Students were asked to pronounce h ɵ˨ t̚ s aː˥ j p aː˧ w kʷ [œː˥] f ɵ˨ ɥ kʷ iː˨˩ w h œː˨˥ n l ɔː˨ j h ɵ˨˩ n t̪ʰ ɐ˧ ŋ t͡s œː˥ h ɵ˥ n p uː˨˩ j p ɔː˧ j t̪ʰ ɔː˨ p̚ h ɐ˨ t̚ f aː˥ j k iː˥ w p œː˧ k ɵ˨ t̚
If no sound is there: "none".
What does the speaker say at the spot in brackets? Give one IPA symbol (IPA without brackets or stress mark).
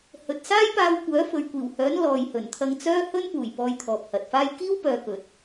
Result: œː˨˥